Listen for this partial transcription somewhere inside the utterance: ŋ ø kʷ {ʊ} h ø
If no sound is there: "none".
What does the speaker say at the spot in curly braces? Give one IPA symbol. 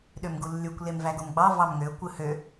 ɯ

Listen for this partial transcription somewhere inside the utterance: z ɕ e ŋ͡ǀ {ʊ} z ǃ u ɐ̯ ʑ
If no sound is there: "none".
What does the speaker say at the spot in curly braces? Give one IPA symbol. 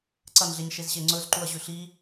ɵ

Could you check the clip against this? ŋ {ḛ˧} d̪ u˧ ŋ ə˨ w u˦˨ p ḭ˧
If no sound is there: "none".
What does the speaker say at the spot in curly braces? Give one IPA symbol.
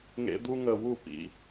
ḛ˧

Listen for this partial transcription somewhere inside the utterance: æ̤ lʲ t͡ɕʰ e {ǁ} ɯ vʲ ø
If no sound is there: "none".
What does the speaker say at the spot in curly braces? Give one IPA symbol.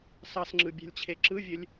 ǁ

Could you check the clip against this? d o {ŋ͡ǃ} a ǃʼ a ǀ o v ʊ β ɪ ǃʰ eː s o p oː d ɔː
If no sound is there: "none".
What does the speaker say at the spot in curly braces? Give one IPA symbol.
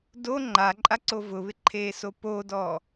ŋ͡ǃ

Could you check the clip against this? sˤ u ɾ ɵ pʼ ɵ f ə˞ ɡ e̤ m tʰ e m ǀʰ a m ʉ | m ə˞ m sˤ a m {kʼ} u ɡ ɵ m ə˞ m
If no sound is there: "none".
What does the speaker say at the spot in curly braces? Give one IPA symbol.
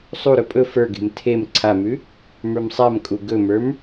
kʼ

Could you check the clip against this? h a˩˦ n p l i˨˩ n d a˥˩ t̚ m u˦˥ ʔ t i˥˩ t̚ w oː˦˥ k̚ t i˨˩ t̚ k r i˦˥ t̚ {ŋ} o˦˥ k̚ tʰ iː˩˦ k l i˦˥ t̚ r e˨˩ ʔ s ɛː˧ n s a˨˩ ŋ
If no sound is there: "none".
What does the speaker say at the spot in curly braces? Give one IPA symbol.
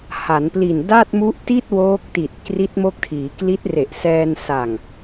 m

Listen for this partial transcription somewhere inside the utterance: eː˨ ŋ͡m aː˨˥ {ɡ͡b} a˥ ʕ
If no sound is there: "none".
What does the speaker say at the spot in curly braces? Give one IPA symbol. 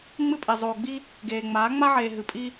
ŋ͡m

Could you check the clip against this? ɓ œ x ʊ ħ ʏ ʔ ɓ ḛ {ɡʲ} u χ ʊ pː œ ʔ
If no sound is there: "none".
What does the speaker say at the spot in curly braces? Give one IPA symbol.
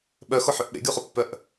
ɡʲ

